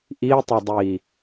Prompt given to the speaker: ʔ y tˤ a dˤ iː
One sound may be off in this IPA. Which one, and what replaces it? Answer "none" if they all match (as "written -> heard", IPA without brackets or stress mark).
y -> i